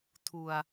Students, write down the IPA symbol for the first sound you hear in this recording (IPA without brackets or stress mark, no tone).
tʰ